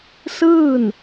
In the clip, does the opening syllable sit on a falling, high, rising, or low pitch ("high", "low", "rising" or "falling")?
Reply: falling